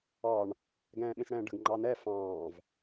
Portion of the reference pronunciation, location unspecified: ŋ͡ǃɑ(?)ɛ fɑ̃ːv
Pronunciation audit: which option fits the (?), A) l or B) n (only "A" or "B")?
B